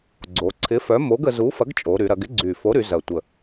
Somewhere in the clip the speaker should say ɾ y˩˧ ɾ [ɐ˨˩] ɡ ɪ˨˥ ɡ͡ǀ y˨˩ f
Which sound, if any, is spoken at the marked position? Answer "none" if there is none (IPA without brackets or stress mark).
ɐ˩˧